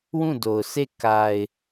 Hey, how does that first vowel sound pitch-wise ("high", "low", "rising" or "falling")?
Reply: falling